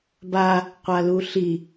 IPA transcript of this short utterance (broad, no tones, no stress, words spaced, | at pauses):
ba | qʷaluɬi